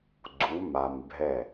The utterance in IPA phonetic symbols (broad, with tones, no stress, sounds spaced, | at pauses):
ɡ͡ǀ u˩˧ m a˩ m bʱ ɛ˧˩